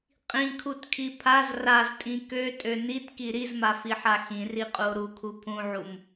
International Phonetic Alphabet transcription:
qʼĩkʰutkʰi pʰaz raztʼĩ køtʼø nitki ɾizmafiħa xĩriqʼuo̯ ɾukʰu pʰũʕum

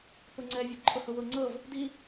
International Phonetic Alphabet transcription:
pʊŋ͡ǀɛ vʲɤɡǃʰʊhʊwʊ ŋ͡ǀɤv | di

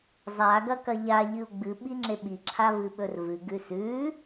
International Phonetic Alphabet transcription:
zˤa ɡɐkɐʎa ʎɨu̯ɡ͡bɨ ɓiŋ͡ǁeɓi ǁʰavɨɓɵrvɨ ɡʉsʉ

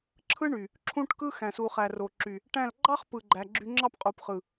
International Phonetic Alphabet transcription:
ǁʰɯ˦ɳy˨ | ǁʰũ˦ʈkɯ˦ xæ̃˨su˨χæ˨ro˨ ǁy˨ | ʈæ̃˦˨l ɡ͡ǃɑ˦χpɯ˨ ɡ͡ǃæ˨ ɡ͡ǁy˧ŋ͡ǁɑ˦p qʼu˨pχɯ˨

